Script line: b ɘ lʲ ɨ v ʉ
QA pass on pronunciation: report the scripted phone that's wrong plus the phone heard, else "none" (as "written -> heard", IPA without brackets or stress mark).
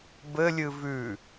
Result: none